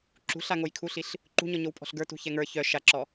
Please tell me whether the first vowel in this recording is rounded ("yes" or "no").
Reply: yes